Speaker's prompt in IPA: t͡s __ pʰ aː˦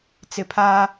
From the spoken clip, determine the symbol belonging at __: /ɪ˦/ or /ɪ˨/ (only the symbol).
ɪ˨